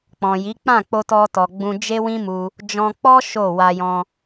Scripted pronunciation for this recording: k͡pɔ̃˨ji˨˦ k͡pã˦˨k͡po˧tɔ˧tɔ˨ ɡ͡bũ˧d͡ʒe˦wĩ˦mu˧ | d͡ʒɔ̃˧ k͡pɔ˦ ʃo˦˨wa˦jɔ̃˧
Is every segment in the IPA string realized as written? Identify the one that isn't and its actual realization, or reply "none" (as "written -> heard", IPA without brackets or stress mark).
a˦ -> a˧